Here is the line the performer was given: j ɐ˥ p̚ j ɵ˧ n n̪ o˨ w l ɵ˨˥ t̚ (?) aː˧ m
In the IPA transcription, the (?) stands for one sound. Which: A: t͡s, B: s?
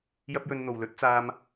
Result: A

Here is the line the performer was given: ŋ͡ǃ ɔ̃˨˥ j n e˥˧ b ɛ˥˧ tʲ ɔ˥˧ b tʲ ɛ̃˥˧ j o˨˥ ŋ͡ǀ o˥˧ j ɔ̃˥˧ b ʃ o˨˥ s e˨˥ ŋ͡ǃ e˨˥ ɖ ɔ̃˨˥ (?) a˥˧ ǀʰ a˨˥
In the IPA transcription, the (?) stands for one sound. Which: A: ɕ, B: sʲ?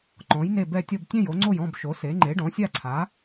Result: B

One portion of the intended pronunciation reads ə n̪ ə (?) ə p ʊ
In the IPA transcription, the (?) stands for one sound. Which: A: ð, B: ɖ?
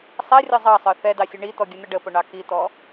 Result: B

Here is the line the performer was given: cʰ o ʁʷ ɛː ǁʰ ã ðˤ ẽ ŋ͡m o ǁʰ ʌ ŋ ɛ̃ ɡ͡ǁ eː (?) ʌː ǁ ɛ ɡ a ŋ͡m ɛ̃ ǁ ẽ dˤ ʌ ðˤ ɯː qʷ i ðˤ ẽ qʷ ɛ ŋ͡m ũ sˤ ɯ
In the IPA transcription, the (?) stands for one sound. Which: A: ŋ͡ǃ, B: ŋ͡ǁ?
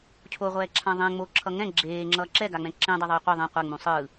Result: B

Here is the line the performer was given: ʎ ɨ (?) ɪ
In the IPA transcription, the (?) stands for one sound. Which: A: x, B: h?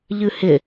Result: B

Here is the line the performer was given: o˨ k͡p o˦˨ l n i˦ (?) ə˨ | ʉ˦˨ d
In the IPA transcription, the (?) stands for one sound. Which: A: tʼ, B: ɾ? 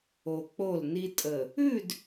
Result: A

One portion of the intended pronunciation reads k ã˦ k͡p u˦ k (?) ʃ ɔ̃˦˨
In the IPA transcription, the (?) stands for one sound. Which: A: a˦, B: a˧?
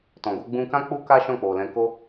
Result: A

